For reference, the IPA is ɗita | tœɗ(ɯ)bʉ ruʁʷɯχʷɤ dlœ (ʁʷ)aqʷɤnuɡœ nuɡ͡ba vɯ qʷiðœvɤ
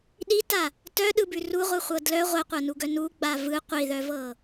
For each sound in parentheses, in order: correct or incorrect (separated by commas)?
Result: correct, correct